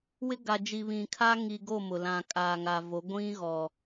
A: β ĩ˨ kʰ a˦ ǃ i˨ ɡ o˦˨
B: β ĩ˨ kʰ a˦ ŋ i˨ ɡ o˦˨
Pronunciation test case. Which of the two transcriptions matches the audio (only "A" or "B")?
B